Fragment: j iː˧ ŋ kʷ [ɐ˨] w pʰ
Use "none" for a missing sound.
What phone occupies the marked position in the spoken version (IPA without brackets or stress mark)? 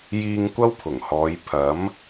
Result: ɐ˥